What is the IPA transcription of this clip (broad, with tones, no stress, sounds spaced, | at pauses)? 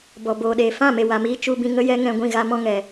b ɔ˨ b oː˨ ɗ eː˨ f ã˦˨ m e˨ w a˨ m iː˧ t͡ʃ u˧ b ĩ˧ ŋ ə˦ j ɛ˦ ŋ ɛ̃˧ ɡʷ ĩ˦˨ ɣ a˦ m ɔ̃˦ ŋ ɛ˨